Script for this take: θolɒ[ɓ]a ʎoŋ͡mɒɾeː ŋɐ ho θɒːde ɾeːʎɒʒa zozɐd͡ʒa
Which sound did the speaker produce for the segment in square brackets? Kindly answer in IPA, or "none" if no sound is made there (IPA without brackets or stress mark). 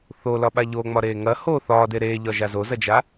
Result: ɓ